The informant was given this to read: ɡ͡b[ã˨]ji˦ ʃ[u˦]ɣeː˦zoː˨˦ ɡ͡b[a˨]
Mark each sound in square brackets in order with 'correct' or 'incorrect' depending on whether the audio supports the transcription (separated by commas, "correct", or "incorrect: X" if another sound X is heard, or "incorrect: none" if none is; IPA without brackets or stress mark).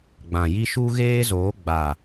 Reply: correct, correct, correct